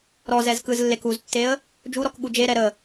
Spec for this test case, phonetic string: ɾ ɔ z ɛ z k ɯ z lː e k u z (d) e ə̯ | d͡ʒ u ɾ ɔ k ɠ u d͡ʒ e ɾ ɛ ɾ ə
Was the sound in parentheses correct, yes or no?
no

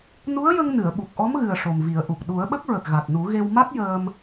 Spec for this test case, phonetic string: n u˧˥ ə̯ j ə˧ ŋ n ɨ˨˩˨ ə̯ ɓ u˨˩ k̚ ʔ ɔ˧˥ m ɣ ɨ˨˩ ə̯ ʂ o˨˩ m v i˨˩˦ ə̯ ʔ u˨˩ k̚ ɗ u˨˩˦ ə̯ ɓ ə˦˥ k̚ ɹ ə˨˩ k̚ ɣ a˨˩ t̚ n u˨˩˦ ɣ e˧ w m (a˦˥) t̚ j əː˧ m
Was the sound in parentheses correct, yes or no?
yes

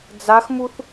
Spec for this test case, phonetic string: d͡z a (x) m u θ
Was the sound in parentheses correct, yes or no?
yes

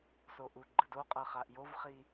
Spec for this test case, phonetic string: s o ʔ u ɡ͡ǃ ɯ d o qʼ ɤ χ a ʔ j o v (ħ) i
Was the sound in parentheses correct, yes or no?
no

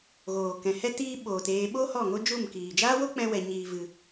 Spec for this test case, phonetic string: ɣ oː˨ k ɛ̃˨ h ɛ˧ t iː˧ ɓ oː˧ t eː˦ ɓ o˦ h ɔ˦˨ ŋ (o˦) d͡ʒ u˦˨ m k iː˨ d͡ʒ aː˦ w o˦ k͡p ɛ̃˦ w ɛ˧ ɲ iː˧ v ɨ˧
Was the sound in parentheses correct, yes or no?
yes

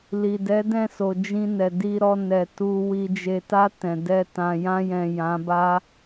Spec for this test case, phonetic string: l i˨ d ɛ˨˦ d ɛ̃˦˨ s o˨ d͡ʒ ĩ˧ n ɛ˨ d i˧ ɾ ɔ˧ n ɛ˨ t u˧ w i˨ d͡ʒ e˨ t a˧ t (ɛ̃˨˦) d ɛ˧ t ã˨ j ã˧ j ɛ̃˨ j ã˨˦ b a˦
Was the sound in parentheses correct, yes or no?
no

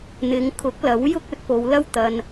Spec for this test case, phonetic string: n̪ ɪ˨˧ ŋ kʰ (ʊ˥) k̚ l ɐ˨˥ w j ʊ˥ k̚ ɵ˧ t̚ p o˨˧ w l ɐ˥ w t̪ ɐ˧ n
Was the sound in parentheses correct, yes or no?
no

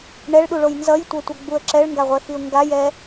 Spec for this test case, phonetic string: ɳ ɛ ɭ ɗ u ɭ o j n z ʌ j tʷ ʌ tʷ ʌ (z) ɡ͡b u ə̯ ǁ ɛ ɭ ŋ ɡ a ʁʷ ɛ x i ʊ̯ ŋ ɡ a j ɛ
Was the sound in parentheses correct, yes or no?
no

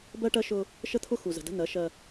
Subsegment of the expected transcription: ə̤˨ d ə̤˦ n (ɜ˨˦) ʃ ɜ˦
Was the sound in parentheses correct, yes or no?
yes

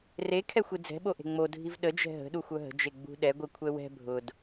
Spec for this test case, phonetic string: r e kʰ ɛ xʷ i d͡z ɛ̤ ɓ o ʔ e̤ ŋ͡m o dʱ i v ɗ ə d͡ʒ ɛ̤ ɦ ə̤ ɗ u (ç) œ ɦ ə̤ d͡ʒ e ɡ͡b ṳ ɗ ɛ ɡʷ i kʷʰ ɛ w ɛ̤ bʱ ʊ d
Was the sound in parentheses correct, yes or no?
no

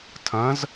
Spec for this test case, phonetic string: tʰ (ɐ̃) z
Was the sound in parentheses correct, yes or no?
yes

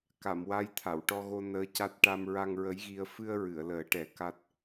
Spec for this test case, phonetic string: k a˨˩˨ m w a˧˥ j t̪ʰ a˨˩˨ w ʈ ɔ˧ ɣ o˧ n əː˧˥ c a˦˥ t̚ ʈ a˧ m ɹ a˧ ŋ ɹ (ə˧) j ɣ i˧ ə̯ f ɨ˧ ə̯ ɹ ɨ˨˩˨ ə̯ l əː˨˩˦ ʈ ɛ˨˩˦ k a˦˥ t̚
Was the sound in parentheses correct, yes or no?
no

